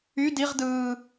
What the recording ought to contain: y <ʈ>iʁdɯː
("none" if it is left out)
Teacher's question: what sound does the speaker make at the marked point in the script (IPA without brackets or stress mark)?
d